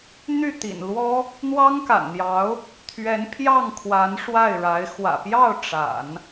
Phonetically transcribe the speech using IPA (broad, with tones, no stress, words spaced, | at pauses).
n̪y˥˩ t̪ḭ˨˩nlwɔ˥ | n̪wɑ˥ŋka̰˨˩nn̪jɑ˧˥ʊ̯ | t̪ʰɥɛ˧˥npʰjɑ˥˩ŋkʰwa˧˥n ʂwa˥˩ɪ̯ɻa˧˥ɪ̯ xwä̰˨˩pjɑ˥˩ʊ̯ ʈ͡ʂa̰˨˩˦n